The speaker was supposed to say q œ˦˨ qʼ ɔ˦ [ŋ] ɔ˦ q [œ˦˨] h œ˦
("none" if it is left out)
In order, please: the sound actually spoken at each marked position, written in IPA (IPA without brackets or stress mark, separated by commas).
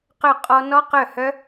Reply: n, œ˦˨